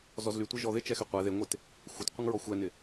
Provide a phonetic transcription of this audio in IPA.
z ɔ z l y tʷ ɪ ʒ ɔ ð ɪ t͡ʃ ɛ x y qʷ ɛ ð e ŋʷ e t | xʷ ə t qʷ ə ŋ ɹ ɔ xʷ ɛ n ɪ

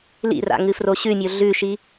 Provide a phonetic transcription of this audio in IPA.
l ḭ r a̰ ŋ ɨ f r o ɕ ʉ mʲ o ɮ ʉ ʃ i

